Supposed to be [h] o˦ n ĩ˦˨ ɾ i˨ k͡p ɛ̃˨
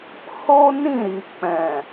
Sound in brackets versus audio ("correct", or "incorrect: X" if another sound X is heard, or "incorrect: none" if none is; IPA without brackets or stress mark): correct